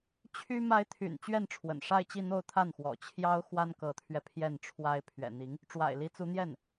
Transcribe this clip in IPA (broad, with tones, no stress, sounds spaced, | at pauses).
t͡ɕʰ y˥ m a˧˥ ɪ̯ t̪ʰ y̰˨˩ n t͡ɕ ɥ ɛ˥˩ n ʈ͡ʂʰ w ə̰˨˩ n ʂ a˥˧ ɪ̯ t͡ɕ i˥˧ n̪ o˥˧ ʊ̯ t̪ʰ a˥˩ n x w ɔ̰˨˩ t͡ɕʰ j ɑ˥ ʊ̯ x w a˥ n k ɤ˧˥ t̪ʰ ɥ ɛ˧ pʰ j ɛ˥˩ n ʈ͡ʂʰ w a˥ ɪ̯ pʰ ɥ ɛ̰˨˩ n̪ i˧˥ ŋ | ʈ͡ʂ w a̰˨˩ ɪ̯ l i˧˥ t͡s u˧˥ n̪ j ɛ˥˩ n